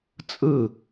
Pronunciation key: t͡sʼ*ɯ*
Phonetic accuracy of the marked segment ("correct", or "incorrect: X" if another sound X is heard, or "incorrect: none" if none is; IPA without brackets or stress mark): correct